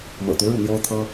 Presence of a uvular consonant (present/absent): absent